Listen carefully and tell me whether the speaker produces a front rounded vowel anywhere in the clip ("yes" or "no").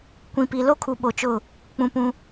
no